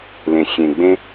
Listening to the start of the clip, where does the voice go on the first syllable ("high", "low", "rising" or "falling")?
low